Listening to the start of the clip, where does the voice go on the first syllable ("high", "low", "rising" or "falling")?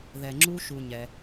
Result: low